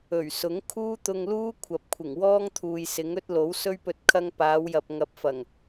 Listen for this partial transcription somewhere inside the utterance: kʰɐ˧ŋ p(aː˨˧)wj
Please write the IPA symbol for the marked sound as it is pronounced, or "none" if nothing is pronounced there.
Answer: aː˨˧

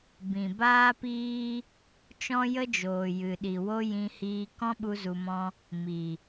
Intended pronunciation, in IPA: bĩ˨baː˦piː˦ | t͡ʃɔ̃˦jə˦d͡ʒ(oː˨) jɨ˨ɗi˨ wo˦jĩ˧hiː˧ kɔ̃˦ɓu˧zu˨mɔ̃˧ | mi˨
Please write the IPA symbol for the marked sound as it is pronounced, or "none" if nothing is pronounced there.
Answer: oː˨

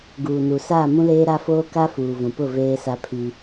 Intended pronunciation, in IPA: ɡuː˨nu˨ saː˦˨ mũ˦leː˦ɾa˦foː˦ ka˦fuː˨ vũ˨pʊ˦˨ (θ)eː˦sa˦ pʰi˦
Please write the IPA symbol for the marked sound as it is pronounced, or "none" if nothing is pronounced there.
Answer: v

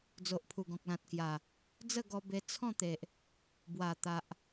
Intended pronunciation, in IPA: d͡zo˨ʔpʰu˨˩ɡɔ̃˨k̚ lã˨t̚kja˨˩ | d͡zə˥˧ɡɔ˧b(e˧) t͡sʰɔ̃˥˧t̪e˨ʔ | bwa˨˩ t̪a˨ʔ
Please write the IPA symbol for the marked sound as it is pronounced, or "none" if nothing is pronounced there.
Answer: e˧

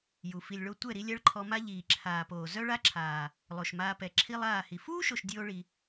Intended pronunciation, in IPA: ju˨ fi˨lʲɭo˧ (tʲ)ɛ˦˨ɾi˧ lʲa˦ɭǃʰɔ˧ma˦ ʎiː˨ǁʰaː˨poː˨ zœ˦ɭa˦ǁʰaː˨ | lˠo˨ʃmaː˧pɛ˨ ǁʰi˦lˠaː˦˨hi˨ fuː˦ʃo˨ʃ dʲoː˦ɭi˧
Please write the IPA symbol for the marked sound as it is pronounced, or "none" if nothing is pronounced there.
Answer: tʷ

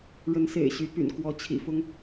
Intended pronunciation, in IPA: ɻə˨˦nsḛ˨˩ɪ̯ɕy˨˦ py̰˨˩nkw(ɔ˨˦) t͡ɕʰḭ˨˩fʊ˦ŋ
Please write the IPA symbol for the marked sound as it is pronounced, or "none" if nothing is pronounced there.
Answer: ɔ˨˦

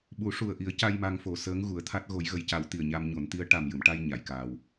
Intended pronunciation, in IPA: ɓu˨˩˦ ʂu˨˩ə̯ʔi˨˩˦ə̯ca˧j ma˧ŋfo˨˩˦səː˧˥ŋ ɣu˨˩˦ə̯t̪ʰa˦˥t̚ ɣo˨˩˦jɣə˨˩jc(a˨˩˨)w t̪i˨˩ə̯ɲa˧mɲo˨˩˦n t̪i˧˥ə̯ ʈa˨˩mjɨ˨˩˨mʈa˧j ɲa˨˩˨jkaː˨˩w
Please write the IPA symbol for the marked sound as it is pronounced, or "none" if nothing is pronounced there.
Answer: a˨˩˦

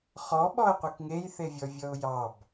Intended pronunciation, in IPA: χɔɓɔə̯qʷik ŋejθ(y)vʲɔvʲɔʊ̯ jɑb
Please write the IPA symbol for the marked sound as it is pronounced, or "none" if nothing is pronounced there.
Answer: e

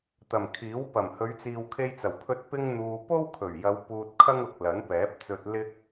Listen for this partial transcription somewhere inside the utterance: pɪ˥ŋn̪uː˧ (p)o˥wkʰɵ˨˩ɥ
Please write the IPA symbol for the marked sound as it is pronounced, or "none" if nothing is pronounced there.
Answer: p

